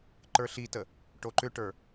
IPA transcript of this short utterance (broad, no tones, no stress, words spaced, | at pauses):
ǃə˞ɬitə | ʈoǃʏʈə˞